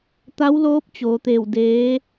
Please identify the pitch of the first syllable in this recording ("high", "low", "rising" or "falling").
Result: rising